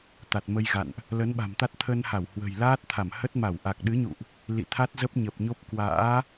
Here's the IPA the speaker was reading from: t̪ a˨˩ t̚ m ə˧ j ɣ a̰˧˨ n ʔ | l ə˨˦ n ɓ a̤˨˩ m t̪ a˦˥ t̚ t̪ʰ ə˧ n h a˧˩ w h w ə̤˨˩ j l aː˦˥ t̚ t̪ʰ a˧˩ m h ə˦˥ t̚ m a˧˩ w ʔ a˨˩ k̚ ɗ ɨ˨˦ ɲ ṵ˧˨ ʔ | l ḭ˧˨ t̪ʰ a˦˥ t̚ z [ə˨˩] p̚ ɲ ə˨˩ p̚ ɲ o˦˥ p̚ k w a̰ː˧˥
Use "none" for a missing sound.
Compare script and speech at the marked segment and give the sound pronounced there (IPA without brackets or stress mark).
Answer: ə˦˥